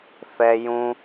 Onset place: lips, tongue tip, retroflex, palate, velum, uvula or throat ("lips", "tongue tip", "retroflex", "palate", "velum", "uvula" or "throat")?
lips